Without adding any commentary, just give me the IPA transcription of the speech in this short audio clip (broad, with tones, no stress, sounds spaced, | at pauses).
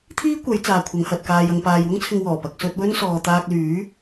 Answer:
t̪ʰ iː˥ kʷ ɐ˨˧ j t͡s aː˨ kʷʰ ɐ˨˧ ŋ h ɐ˨ t̚ k aː˨ j ɐ˨ ŋ p aː˨ j w ʊ˥ ŋ t͡sʰ ɪ˧ ŋ w ɔː˨˩ p ɐ˨ k̚ s ɵ˧ t̚ w ɵ˥ n s ɔː˨ t̪ aː˧ k̚ l yː˨˥